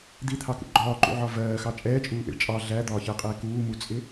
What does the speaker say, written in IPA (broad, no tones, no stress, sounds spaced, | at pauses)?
d̪ i t̪ʰ ɑ k ṵ ɡ͡ǃ ɒː ǃ ṵ ʕ ɒ v ɜː x ɑ t͡ʃʼ ɛː t͡ʃʼ uː ʔ ḭ ɭ t͡ʃʼ ɑ ɮ æ d̪ ɒː ç ɜ qʼ ɛː k uː m u t͡sʼ ɪ